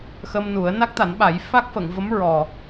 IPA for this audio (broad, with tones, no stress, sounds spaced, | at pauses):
x ə˧ m n u˨˩˦ ə̯ n a˦˥ k̚ t̪ a˨˩˦ n ɓ a˨˩˦ j f a˦˥ k̚ f ə˨˩˨ ŋ v ə˧˥ m ɹ ɔ˨˩